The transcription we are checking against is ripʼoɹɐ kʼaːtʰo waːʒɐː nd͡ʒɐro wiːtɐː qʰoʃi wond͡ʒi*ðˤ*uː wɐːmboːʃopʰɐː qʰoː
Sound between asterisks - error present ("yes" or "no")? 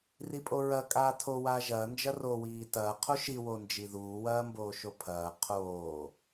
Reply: yes